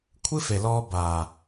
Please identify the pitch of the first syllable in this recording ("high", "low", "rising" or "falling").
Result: high